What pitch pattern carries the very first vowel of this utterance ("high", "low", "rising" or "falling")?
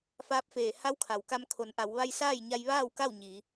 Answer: rising